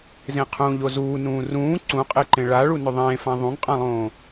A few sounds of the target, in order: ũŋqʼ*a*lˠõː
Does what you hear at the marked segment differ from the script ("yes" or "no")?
yes